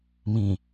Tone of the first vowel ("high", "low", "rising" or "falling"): low